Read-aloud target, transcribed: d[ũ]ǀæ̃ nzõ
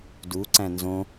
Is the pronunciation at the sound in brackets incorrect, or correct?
incorrect